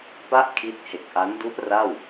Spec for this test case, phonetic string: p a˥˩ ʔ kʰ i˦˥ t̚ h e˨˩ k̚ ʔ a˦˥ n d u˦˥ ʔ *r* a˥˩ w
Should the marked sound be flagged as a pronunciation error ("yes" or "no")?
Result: no